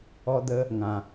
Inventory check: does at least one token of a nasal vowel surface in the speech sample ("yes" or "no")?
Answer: yes